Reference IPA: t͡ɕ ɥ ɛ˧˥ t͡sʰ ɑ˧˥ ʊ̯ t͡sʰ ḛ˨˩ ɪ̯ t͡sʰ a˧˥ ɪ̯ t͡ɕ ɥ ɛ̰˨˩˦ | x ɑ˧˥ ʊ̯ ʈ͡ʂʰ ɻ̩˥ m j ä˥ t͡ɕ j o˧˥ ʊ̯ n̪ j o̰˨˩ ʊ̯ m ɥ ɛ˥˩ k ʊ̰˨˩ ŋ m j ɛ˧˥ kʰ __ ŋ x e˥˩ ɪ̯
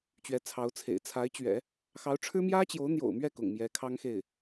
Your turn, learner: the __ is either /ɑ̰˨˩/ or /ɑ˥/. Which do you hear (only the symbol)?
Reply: ɑ˥